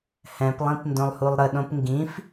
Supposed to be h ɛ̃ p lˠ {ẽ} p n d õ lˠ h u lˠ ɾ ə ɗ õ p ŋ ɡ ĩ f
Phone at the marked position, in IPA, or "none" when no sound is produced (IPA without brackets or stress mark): ĩ